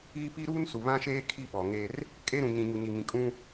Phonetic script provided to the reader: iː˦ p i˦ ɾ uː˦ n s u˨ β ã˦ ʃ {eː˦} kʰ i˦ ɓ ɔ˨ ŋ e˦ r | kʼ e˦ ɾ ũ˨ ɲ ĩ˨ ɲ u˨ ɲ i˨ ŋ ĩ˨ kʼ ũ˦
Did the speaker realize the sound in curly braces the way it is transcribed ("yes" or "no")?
yes